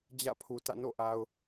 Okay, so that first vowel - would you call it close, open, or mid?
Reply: open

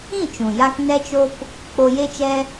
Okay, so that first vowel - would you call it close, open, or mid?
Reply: close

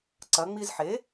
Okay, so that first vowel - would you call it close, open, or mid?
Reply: open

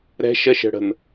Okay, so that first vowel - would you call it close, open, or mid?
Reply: mid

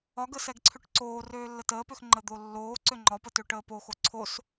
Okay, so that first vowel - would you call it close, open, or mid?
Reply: open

